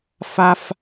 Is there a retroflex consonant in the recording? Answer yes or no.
no